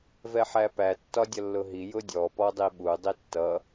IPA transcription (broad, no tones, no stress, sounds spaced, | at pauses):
v ɛ ħ æ p æ tː ɒ dʲ ʌ lː ʊ ɦ i j ʊ dʲ ɔ p ɔ dˤ i ɓ u dˤ i tː ʌ